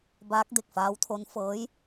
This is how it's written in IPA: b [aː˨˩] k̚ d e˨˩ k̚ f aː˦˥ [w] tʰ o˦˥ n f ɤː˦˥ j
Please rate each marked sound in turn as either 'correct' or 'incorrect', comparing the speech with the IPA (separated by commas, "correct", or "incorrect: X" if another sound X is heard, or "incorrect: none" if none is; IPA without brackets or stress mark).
incorrect: aː˦˥, correct